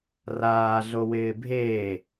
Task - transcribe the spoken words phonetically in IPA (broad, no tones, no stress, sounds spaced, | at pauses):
r aː ɮ o w ɪː bʱ eː